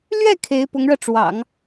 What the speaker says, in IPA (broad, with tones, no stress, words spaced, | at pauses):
lɥɛ˥˩ kʰe˧˥ɪ̯pʊ˧˥ŋɻɤ˧ʈ͡ʂwɑ̰˨˩˦ŋ